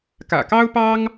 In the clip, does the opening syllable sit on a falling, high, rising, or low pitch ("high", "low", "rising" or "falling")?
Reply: low